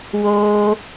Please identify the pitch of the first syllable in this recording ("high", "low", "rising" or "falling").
high